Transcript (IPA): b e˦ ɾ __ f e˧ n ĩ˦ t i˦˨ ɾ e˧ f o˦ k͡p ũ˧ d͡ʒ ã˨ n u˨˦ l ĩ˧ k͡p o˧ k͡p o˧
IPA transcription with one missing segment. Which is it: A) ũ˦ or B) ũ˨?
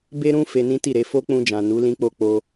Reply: A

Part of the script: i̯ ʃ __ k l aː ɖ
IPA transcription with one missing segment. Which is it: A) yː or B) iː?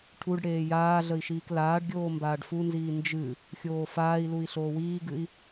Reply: B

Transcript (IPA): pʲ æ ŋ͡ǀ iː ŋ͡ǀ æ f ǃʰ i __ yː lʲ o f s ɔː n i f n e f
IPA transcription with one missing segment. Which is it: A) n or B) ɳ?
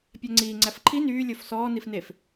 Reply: A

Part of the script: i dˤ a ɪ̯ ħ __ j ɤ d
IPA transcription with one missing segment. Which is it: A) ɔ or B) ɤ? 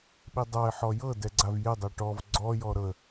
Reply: A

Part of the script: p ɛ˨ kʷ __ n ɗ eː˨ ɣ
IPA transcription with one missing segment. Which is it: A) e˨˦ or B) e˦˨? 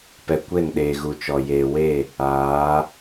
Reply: B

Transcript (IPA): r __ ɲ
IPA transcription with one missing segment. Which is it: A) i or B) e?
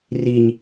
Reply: A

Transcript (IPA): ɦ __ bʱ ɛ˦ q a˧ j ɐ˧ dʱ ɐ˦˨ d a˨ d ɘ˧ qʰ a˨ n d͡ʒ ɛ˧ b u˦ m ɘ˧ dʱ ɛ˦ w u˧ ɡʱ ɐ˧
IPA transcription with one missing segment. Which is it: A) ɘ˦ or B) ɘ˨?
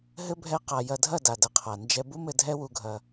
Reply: A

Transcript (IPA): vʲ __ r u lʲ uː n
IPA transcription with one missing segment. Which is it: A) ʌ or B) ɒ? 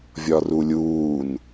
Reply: B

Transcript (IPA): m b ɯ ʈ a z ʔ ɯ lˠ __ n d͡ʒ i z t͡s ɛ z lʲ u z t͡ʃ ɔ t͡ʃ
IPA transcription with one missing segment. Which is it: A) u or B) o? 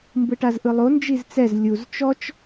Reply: B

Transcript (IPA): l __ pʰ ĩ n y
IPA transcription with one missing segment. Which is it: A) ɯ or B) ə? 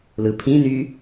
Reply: A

